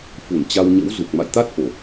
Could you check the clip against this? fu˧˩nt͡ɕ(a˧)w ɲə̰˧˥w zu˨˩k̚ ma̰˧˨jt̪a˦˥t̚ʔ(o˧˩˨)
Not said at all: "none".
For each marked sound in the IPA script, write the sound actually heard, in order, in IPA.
a˧, o˧˩˨

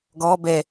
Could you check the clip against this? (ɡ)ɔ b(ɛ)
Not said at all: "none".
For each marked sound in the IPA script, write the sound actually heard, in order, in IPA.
ɡ, ɛ

